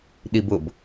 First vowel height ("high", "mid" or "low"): high